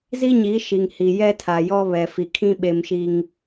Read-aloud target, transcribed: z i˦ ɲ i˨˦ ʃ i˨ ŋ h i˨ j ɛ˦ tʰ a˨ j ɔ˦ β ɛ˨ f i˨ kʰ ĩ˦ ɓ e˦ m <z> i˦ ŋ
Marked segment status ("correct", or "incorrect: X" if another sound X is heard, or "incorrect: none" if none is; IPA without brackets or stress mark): incorrect: ʃ